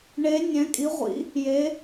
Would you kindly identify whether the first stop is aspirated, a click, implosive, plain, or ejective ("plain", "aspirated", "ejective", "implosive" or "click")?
ejective